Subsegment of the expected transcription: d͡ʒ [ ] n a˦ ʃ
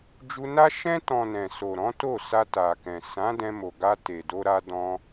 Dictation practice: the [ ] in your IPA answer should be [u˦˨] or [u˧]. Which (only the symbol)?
u˧